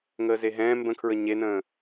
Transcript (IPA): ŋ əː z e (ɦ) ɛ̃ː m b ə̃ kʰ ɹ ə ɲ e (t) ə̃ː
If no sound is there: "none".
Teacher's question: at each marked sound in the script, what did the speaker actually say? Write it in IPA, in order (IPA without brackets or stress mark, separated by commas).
ɦ, n